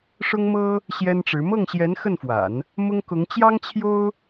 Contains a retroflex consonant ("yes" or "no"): yes